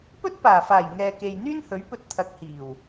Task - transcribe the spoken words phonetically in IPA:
pɵ˥t̚paː˨˩faː˨˩j ŋɛː˨ke˨j n̪yː˥nhɵ˨˥ɥ pɵ˧t̚t̪ʰɐ˨˥k̚hiː˨˩w

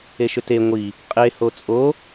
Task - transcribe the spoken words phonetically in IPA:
eʃʏte ŋʷi | qʼe hot͡sʼo

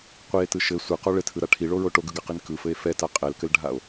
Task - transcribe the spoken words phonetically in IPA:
qʷie̯tɯ ʃɘ sʷɯqo ɭɘtʰɯɾa ʈʰiɭoɹo ʈoɡɯɡaqin kɯfɘe̯ fɛta qʼɛlkɘlɖʱao̯

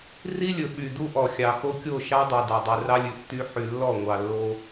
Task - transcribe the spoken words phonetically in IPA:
ri˦lʲɵ˨ ɓy˨ du˦ʔɔ˨xʲɑ˨xo˦ kʲo˦˨ʃɑ˦dˤu˨ dɑ˨dˤʉ˨rɑ˦lʲʉ˨ tːy˦ ħy˨lːɔ˦˨ŋʷɑ˨ lːo˦

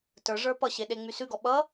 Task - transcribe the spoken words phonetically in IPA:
tə˞ʐə˞ pʌɕeɗeŋ͡my sʉɡɔ ɓʌ

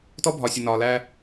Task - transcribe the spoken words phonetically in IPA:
tɔ˦bʱɒ˨sʲə˨ nɒː˨læː˦

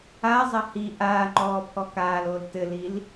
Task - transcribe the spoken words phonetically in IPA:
azˤɐ hi ʔaːŋ͡ǃɔː pʰɔkaːloːl tɘlil

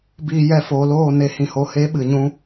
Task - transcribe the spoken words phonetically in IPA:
biː˧jɛ˧foː˨loː˦˨ ne˨hĩ˨ho˨he˨˦ ɓɨ˨ɲũ˧

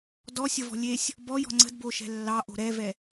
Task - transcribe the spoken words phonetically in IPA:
dɔsʲəvɔ̤ lʲesʲ | bɔjɔ̤ ŋ͡ǀə̤dboʃɛ̤ lːɑʔo̤ ɾɛvɛ

